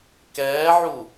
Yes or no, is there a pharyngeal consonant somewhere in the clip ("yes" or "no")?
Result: yes